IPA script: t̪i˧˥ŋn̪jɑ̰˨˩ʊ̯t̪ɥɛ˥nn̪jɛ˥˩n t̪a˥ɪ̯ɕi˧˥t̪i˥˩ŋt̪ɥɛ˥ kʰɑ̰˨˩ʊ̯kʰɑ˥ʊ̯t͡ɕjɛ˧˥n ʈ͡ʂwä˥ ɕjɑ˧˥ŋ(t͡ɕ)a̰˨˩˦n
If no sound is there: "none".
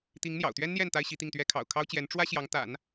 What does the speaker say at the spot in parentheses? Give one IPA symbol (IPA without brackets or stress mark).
t̪